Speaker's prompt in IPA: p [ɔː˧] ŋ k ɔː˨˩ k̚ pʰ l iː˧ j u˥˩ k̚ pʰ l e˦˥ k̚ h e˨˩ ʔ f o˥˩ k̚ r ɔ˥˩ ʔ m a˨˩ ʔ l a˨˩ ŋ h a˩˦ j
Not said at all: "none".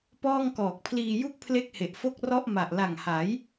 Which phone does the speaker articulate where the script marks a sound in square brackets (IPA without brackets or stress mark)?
ɔː˥˩